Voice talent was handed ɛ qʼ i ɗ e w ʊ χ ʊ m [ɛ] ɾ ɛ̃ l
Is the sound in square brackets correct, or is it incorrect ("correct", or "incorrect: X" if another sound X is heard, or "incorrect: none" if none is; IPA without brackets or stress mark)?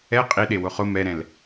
correct